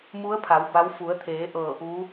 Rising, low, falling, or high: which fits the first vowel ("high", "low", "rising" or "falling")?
rising